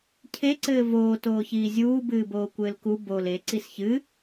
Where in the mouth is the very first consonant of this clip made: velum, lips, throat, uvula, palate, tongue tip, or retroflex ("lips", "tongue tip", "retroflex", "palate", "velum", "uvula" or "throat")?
palate